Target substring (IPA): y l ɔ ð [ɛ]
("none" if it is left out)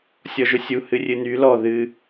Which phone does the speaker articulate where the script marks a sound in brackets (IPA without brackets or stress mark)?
ɨ